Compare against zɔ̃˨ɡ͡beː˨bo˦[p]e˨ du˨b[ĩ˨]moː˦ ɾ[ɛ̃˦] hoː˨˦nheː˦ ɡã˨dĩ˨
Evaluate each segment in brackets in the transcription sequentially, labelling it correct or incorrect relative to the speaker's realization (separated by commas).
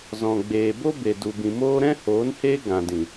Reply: incorrect, correct, correct